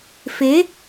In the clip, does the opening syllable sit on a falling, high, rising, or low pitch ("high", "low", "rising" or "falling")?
rising